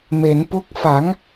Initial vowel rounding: unrounded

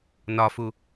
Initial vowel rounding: rounded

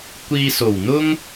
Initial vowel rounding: unrounded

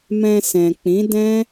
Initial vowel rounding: unrounded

